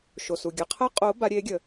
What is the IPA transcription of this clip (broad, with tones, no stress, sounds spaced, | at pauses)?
ʃ o˩ s u˩ ɡʲ ə˩˧˩ qʰ ə˦˥ qʼ o˨˦ b a˨˦ ɾʲ e˨˦ ɡʲ ə˩